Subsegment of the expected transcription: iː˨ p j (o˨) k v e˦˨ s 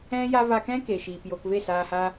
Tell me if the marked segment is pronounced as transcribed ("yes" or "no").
yes